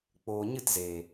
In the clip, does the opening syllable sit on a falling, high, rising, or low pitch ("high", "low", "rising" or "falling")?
low